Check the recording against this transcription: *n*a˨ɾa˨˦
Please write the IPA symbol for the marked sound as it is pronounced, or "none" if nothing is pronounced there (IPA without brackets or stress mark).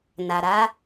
n